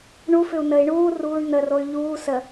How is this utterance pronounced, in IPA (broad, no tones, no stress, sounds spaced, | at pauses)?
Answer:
ɳ u f ʏ u̯ n ə i̯ ɳ uː r uː ɳ n̪ ə r o y̯ ʎ uː s ə